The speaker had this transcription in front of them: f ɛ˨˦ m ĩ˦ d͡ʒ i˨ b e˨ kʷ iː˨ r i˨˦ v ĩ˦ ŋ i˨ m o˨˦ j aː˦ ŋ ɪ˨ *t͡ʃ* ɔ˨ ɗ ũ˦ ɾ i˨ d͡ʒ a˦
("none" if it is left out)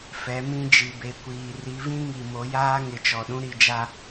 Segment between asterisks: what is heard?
t͡ʃ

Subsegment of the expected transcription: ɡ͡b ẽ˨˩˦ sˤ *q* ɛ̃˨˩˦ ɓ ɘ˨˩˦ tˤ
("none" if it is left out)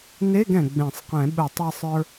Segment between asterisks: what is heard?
q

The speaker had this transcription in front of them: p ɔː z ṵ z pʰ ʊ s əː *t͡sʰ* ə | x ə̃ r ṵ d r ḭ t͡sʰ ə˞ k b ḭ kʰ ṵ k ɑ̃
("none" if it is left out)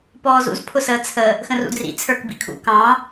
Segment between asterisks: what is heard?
t͡sʰ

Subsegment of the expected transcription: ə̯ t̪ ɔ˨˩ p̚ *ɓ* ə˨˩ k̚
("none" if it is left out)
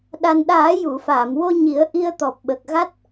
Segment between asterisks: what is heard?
ɓ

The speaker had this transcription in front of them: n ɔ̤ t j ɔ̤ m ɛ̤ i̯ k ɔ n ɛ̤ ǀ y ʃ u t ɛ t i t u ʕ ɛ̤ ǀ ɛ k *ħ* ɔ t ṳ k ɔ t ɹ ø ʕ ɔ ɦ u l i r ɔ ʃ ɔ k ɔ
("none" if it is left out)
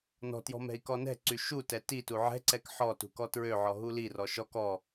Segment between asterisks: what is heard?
ħ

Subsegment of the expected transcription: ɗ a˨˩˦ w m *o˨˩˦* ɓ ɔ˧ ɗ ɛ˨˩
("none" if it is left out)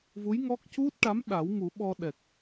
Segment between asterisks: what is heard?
u˨˩˦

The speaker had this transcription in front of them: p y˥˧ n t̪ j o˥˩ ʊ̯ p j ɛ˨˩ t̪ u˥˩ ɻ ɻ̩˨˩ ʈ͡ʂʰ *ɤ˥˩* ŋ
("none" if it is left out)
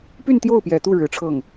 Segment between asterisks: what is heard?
ɤ˥˩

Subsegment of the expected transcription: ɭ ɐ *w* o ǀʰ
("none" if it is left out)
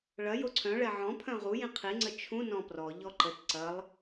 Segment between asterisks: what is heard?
j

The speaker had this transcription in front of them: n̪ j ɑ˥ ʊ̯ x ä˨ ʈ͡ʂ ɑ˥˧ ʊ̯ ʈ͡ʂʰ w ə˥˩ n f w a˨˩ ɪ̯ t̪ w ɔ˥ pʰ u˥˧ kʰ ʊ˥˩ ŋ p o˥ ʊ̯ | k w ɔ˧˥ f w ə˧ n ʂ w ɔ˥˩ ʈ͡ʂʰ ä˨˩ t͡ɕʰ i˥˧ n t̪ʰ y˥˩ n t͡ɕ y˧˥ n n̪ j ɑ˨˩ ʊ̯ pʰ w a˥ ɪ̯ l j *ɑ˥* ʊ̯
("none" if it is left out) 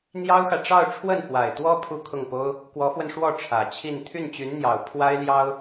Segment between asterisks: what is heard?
ɑ˥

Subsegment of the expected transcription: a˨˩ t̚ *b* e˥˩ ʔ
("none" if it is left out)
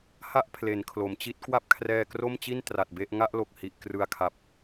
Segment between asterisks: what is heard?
b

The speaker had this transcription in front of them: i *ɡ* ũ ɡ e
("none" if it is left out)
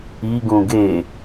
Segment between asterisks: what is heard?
ɡ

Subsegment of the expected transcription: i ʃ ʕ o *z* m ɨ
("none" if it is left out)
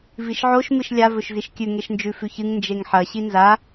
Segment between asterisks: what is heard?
ʃ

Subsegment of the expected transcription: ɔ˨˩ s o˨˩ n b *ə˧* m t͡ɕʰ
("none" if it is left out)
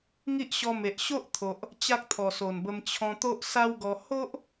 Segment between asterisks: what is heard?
ə˧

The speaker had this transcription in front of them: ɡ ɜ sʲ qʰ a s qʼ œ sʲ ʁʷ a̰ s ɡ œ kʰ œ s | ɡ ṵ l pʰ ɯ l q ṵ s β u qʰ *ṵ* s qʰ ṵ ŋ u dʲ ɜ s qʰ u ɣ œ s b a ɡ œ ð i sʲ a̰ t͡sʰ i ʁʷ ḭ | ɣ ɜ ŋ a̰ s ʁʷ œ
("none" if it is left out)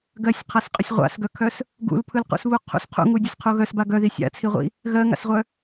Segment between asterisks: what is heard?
ṵ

